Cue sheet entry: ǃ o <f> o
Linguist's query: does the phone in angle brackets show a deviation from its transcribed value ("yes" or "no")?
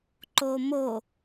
yes